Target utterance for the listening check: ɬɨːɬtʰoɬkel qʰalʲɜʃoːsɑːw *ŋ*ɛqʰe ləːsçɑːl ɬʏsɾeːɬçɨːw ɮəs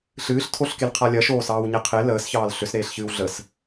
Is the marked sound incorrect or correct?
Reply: incorrect